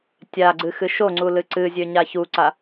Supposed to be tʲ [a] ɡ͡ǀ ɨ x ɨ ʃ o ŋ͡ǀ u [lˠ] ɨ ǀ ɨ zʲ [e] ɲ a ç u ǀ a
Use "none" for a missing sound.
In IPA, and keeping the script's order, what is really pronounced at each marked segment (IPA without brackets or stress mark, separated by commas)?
a, l, ø